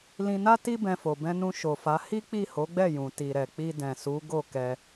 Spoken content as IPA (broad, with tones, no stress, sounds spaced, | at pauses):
l ĩ˧ n a˦ t i˦ b ɛ̃˧ f o˨ b ɛ̃˧ n ũ˧ ʃ o˨ f a˨˦ h i˦ k͡p i˦˨ h o˨˦ ɡ͡b ɛ˦˨ j ũ˨ t i˨ ɾ ɛ˨ k͡p i˧ d ɛ̃˨ s u˨˦ ɡ o˦˨ k ɛ˧